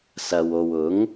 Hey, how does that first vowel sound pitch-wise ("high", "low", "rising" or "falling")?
low